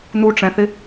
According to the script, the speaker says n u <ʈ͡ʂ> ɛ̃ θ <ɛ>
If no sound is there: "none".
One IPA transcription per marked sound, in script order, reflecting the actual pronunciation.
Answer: ʈ͡ʂ, ɪ

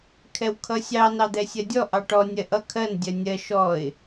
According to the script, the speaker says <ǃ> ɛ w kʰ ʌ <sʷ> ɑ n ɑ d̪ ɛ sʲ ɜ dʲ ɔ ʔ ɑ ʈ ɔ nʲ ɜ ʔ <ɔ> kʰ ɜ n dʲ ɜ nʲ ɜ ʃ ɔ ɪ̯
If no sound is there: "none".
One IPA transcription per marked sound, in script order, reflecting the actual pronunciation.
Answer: kʰ, sʲ, ʌ

